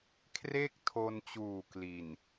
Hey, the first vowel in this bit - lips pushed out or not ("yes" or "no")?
no